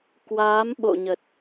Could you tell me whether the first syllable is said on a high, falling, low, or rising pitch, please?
rising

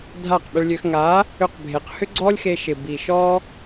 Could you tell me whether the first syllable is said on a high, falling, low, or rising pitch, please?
falling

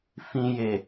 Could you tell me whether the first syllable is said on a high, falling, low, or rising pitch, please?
low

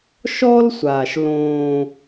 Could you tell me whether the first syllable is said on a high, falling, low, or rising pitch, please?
high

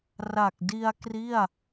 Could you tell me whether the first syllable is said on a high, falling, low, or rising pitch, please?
low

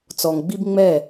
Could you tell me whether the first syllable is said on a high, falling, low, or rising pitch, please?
low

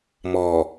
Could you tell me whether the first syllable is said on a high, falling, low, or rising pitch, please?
low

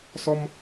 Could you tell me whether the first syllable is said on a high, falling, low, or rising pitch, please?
high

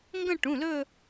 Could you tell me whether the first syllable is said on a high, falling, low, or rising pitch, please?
falling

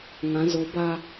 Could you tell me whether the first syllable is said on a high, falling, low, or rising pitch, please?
rising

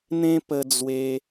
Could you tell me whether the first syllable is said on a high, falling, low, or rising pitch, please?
high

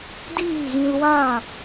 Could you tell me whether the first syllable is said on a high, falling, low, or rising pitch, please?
falling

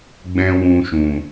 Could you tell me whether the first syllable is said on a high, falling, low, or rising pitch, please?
high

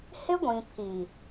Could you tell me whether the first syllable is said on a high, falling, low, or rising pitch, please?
high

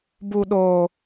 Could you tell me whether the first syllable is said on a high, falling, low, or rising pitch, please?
high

